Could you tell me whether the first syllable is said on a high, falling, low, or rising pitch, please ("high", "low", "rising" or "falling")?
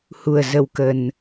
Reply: low